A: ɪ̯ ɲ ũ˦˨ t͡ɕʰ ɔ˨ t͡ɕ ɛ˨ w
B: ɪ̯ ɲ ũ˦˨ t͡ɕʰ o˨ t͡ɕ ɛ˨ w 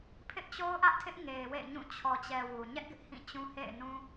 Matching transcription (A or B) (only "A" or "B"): A